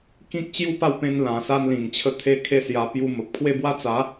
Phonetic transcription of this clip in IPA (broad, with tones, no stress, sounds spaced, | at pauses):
k ĩ˦ k̚ t͡ɕ j u˥˧ p a˥˧ w p ẽ˧ n l ã˨˩ s a˧ n l ĩ˨˩ ŋ t͡ɕʰ ə˧ t̪ʰ e˦ kʰ e˦ s j a˧ p j u˧ m ə˨ p̚ kʰ w e˦ b w a˦ t͡s a˨˦